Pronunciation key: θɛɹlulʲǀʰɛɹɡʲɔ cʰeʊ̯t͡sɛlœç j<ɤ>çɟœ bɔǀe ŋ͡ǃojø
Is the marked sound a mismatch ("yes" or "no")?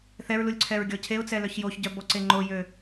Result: yes